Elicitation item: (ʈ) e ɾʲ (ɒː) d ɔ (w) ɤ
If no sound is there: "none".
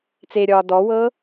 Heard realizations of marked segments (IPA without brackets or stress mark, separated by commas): t͡s, ɒː, w